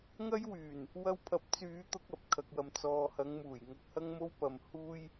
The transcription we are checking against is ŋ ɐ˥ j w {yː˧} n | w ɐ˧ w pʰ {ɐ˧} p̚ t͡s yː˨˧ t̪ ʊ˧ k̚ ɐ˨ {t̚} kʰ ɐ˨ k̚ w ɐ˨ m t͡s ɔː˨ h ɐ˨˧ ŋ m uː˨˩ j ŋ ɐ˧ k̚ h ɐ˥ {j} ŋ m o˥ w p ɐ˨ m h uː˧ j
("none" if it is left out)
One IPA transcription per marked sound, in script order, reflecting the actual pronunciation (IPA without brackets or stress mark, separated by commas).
yː˨˩, ɐ˨˥, p̚, none